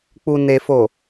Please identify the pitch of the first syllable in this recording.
low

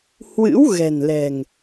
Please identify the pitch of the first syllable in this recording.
rising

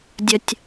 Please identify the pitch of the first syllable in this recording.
low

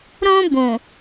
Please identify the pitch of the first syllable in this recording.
high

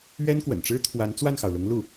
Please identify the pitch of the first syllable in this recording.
high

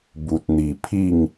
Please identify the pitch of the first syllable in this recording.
low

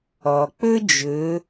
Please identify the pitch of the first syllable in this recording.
low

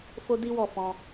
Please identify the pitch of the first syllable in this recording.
high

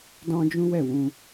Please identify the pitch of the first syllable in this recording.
high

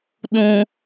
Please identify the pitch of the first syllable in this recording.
high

